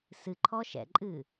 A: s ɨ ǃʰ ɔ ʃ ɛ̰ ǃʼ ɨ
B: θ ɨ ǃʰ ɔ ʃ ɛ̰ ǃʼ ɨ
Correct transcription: A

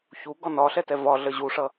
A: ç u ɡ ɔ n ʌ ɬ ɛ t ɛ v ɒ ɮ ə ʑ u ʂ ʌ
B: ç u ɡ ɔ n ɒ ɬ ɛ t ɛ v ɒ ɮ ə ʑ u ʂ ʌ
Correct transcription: B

